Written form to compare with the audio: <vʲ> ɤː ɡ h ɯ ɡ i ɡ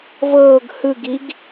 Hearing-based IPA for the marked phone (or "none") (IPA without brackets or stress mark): v